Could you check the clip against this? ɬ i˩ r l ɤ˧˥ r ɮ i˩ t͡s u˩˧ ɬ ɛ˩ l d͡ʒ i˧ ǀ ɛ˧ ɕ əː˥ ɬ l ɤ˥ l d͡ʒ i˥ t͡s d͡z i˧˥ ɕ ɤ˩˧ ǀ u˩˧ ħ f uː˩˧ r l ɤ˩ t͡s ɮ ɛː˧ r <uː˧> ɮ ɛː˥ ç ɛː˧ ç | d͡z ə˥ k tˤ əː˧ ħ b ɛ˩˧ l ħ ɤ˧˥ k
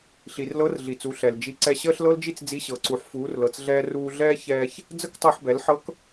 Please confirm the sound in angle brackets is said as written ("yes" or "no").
yes